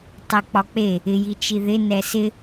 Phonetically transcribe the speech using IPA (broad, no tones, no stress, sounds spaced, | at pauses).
tˤ ɛ k͡p ɒ k͡p e | ɪ j i t͡ʃ i ð ɪ n ɛ s ɪ